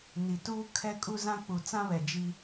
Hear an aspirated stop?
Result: yes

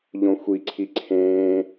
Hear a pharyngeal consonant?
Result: no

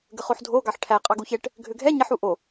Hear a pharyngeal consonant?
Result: yes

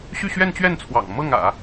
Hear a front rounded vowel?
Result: yes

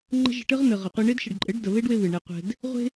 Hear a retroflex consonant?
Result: yes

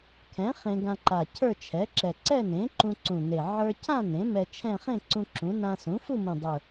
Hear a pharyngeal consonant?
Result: yes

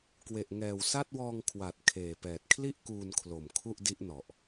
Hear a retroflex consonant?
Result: no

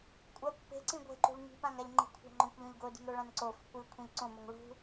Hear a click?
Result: yes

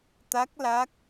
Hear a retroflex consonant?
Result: no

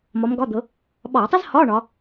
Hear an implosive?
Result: yes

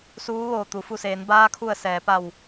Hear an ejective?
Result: no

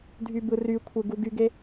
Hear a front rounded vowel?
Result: yes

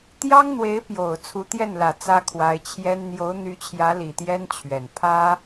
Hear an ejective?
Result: no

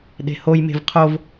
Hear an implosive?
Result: yes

